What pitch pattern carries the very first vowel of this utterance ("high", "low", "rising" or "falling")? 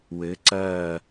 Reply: rising